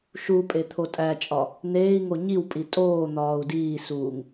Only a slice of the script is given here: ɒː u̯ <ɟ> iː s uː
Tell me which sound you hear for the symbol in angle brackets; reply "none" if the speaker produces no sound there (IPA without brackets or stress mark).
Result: d